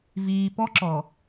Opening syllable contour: low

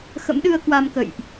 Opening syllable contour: rising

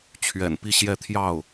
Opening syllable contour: low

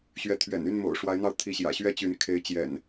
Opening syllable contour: high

